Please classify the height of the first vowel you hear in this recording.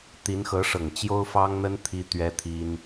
high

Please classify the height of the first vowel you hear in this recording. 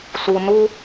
high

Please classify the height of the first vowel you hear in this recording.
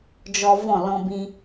mid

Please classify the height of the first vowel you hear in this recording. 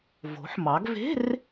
mid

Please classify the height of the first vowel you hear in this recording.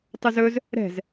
high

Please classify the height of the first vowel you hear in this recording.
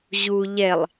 high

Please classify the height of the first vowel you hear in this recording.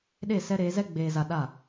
mid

